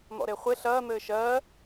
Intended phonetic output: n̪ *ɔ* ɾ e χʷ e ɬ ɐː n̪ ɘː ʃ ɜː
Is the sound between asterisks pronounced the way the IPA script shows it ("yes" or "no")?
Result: no